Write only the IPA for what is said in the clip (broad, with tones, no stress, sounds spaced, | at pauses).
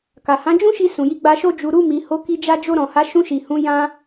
k a˨ h ã˨˦ d͡ʒ ũ˦ ʃ i˧ s ũ˨ j i˧ ɡ͡b a˧ ʃ o˧ d͡ʒ u˨ ɾ u˧ m i˨ h o˨˦ k i˧ d͡ʒ a˧ d͡ʒ o˧ ɾ ɔ̃˨ h a˨˦ ʃ ũ˧ ʃ i˨ h ũ˨˦ j ã˧